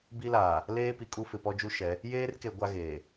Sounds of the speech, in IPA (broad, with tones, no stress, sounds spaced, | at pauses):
b i˦ l aː˨ | l eː˦ p i˨ kʼ u˦ f ɪ˨ p ɔ˦ d͡ʒ u˦ ʃ ɛ˨˦ | j eː˦ r k e˨ ɡʷ a˦ ɣ eː˨